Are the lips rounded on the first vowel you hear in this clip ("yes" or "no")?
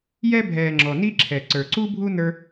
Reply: no